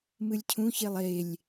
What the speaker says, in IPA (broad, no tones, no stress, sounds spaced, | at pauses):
m ɨ lʲ cʰ ũ ç e lˠ e lʲ